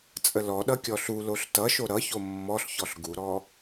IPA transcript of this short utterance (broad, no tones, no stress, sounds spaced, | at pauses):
t͡sʼ ə l ɔ ɗ ʌ kʲ ɔ ɬ u l o ɬ t ʌ ʃ o ɾ ʌ ç o mː ɔ ɬ ç ɔ ɬ ɡ u ɾ ɔ